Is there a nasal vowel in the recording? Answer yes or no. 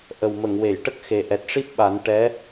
no